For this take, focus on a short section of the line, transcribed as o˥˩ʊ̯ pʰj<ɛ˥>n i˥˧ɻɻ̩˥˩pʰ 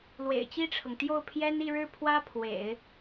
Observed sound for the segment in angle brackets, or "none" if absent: ɛ˥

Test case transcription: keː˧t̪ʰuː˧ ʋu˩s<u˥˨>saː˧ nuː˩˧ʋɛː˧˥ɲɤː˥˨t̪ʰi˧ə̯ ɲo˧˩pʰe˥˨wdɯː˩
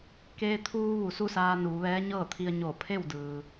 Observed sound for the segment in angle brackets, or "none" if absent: u˥˨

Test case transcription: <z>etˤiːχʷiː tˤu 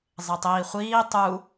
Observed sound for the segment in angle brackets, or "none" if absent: zˤ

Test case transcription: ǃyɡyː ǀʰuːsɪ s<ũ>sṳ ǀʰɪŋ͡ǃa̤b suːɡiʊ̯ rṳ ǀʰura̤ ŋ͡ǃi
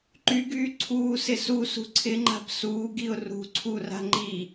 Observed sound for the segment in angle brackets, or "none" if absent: u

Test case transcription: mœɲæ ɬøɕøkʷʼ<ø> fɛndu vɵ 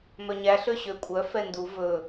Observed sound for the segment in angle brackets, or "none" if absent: œ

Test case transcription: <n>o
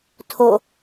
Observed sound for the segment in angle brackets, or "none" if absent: tʰ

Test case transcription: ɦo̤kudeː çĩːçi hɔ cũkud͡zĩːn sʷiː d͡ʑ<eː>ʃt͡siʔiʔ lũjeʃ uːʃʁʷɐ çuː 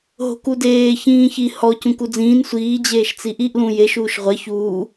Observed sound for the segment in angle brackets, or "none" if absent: eː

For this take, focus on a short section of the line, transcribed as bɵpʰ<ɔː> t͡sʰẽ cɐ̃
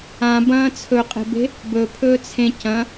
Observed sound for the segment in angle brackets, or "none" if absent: ɵː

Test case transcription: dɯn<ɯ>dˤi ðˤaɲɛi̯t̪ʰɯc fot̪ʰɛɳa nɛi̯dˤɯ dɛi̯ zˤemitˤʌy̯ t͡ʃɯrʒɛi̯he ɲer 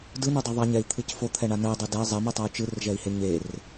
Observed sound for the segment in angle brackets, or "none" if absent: u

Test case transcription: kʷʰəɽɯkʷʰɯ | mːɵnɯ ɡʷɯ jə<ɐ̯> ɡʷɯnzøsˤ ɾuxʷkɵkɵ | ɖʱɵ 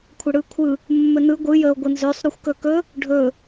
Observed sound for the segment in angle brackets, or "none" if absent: o̯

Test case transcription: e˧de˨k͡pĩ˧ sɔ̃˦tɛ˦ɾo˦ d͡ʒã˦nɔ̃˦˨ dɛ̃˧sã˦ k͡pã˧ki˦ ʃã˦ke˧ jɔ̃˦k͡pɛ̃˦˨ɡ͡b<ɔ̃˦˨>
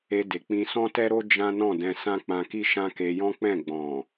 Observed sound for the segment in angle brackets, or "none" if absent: ɔ̃˨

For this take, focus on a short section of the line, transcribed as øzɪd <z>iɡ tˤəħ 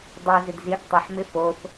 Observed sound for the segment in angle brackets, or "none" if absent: z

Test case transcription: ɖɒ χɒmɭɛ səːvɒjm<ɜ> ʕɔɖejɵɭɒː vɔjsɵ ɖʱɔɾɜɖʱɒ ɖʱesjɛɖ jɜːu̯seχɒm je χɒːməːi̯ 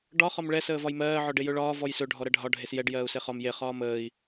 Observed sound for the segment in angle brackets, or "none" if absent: ɜː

